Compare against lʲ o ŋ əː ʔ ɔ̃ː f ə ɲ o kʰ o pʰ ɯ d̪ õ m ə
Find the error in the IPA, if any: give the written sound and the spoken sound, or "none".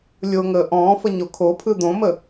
none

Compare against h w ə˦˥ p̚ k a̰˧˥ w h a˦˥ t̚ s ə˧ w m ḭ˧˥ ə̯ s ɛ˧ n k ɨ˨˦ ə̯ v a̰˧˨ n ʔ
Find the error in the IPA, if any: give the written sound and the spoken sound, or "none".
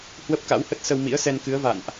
a˦˥ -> ə˦˥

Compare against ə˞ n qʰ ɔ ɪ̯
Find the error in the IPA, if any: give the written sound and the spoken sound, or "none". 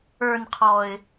none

